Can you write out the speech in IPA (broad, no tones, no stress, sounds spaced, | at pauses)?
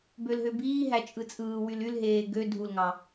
b ø l ɦ ø b iː ɦ æ t͡ʃʼ ɯ t͡sʼ ɯː w y l y l ɦ eː ɡ ø dʱ u l ŋ ɑ